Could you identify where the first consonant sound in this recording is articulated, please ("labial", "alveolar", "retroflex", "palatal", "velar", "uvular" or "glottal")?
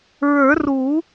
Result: alveolar